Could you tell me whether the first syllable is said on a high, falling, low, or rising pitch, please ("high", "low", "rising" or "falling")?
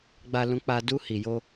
high